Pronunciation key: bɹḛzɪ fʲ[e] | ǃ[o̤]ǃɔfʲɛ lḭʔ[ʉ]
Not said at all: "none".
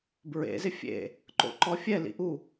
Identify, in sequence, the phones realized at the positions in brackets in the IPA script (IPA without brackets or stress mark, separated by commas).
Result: ḛ, o̰, u